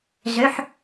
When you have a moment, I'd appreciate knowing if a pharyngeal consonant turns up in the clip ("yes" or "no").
yes